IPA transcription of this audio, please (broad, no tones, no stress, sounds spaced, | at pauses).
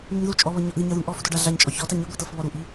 n̪ u ɲ ð u t͡ʃʼ ɔ β ɤ ɲ ɔ ʔ ð i ɲ ɤ ð u ɳ ʔ ɔ f u d ɔ ɖ a ɮ a ɲ t͡ʃʼ ɔ ç ɔ t a ɲ i ɡʷ i t ɤ f β ɔ ɾ u ʔ i